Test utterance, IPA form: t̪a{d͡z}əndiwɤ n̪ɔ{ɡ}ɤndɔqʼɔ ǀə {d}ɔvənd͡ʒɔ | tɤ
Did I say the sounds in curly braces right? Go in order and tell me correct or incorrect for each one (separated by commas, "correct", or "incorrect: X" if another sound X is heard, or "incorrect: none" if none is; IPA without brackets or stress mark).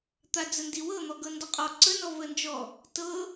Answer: correct, correct, incorrect: n